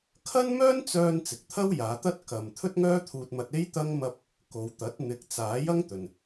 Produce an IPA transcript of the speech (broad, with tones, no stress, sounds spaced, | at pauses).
kʰ ɐ˥ n m œː˥ n t͡s œː˧ n t͡s ɪ˨ k̚ t̪ʰ ɐ˥ w j aː˨˧ t̪ ɐ˥ t̚ k ɐ˧ m t̪ʰ ɵ˥ t̚ ŋ œː˥ t̪ʰ uː˧ t̚ m ɐ˧ t̚ e˥ j t̪ ɐ˥ ŋ m ɐ˥ p̚ | k o˨˧ w t̪ ɐ˨˥ t̚ n̪ ɪ˨˥ k̚ t͡s aː˨˥ j ɐ˥ ŋ t̪ ɵ˨ n